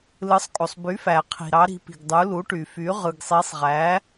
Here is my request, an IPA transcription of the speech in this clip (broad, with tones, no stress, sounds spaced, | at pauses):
l ɯ˩˥ sˤ kʼ o˩ sˤ b y˩˥ f æ˩ qʰ i̤˩ ɾ ɑ˩˥ ɾ i̤˩˥ p i̤˩ ɡ dˤ u˩˥ l u˩˥ ʈ y˩ f y˩˥ ʁ ɯ˩ ɡ sˤ i˩˥ sˤ ʁ æ˩˥